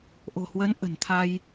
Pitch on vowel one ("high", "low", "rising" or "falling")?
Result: low